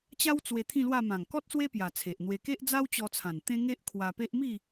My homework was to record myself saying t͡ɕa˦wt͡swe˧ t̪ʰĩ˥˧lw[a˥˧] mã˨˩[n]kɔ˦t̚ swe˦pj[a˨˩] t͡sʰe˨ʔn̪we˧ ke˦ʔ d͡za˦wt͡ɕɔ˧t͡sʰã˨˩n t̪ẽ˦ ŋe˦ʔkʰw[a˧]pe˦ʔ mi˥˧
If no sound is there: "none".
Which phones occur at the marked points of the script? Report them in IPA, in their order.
a˥˧, ŋ, a˨˩, a˧

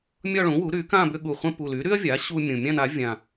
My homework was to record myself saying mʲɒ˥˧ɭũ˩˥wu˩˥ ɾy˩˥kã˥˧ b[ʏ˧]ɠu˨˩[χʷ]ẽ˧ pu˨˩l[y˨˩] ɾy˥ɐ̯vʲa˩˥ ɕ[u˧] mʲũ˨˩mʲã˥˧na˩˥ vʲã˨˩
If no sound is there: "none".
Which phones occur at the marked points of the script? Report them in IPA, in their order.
ʏ˧, χʷ, y˩˥, u˧

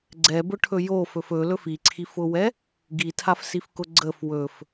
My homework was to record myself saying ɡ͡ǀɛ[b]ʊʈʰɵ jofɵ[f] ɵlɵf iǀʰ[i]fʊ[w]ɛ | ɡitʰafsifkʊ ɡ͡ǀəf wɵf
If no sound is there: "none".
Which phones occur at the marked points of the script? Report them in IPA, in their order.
b, f, i, w

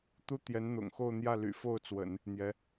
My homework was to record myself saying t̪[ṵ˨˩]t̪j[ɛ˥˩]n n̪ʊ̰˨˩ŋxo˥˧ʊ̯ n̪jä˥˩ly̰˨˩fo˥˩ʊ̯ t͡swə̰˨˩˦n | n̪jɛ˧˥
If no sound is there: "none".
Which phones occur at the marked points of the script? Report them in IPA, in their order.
u˥, ɛ˧˥

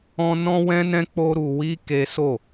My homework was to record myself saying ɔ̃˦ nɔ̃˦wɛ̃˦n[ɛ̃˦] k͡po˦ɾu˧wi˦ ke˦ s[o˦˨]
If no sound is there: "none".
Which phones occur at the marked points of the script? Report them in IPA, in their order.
ɛ̃˦, o˦˨

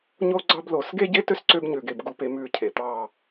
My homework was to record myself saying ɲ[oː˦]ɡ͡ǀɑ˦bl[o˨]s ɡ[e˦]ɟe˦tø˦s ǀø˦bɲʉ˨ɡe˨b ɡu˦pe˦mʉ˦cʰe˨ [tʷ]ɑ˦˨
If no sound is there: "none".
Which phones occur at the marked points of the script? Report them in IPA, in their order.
o˦, o˨, e˦, t̪

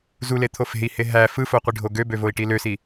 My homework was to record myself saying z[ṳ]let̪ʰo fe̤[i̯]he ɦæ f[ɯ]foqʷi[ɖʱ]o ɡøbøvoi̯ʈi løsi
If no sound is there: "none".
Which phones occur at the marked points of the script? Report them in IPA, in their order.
u, i̯, ɯ, ɖʱ

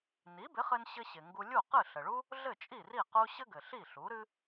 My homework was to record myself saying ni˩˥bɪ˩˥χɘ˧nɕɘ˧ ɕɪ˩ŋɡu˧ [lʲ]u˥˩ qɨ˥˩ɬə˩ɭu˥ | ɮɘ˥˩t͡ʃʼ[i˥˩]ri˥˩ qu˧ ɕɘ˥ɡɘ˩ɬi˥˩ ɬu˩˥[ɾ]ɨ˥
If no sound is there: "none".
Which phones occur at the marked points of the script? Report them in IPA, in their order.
lʲ, i˥˩, ɾ

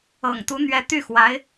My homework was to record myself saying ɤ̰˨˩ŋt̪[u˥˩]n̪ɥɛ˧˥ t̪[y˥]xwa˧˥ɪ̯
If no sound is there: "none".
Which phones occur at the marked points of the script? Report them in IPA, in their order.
u˧˥, y˥˩

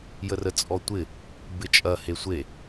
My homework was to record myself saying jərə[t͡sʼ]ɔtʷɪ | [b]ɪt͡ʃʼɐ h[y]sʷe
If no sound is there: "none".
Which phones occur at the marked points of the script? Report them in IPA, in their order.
t͡sʼ, b, e

